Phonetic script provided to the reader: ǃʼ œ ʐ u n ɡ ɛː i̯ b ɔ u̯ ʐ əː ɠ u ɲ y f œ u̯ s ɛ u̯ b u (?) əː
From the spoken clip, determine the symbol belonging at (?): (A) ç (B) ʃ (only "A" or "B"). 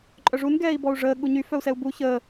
A